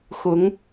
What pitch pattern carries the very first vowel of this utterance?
rising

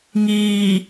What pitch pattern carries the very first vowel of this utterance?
low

